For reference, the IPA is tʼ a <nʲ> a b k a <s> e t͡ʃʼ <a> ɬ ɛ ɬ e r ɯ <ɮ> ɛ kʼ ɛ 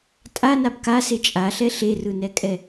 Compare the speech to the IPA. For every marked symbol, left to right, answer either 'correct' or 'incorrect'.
incorrect, correct, correct, incorrect

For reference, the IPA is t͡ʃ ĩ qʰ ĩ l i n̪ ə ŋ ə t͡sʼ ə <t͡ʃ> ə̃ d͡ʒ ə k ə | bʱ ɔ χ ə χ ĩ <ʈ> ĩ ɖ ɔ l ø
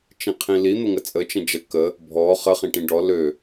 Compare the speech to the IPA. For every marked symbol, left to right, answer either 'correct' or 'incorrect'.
correct, correct

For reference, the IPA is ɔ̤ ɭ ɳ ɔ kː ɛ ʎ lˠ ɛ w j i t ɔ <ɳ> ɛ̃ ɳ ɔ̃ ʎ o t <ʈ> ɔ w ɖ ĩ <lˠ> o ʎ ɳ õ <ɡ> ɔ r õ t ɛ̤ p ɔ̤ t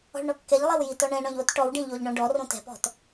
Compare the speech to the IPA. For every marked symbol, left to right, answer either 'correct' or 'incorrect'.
correct, correct, incorrect, incorrect

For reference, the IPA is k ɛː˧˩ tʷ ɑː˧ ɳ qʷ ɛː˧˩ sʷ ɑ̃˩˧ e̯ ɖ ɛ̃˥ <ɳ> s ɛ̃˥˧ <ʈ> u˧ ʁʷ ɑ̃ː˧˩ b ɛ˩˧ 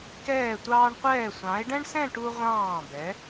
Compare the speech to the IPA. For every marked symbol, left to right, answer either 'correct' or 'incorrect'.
correct, correct

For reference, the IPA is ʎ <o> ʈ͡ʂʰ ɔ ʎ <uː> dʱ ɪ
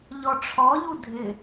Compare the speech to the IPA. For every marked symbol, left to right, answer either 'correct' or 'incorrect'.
incorrect, incorrect

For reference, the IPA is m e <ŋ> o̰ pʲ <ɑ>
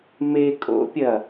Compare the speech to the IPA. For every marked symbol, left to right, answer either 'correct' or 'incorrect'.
incorrect, incorrect

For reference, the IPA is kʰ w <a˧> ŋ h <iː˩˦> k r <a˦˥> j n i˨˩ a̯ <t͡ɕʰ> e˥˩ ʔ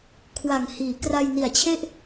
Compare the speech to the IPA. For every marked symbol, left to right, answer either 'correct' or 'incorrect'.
incorrect, correct, incorrect, correct

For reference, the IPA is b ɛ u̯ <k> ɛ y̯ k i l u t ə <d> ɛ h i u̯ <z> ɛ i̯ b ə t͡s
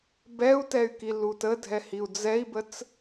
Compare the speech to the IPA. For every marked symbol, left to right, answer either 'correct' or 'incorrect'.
incorrect, incorrect, incorrect

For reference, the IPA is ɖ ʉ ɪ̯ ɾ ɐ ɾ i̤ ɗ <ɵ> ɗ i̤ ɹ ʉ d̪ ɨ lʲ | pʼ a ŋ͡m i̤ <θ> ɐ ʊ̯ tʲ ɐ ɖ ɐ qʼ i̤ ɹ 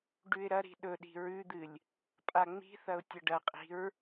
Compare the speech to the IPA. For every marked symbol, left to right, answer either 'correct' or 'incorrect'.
correct, correct

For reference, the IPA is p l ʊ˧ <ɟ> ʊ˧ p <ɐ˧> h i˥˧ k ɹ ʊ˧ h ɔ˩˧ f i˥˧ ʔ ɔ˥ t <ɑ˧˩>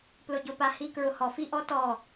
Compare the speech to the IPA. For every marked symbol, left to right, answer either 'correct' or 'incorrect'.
correct, incorrect, incorrect

